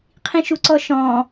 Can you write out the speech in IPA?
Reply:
qʰĩʃuǀɔʃɔ̃

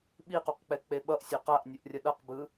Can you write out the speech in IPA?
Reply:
ɓiquqk͡pɛ k͡peɓʌʔ sʲoqaʔnʲuʔrʲʌ ɗʌqbɯ

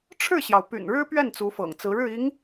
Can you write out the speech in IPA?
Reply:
ʈ͡ʂʰɻ̩˥˩ɕjɑ˩ʊ̯ py̰˨˩nɻɻ̩˥pɥɛ˥˩n t͡su˧˥fɤ̰˨˩ŋt͡sɹ̩˧˥ ɻɻ̩˥˩ i˧˥ŋ

